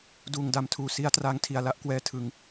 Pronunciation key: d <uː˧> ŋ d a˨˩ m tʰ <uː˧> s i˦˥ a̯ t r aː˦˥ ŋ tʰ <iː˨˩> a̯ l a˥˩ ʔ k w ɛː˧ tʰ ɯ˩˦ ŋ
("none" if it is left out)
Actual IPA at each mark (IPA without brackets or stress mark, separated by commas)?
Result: uː˨˩, uː˨˩, i˨˩